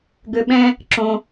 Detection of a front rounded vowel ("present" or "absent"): present